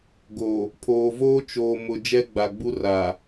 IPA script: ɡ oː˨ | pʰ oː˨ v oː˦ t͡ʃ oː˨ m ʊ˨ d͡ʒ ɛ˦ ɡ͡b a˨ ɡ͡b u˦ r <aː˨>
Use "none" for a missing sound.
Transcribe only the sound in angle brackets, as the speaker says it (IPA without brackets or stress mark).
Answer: aː˨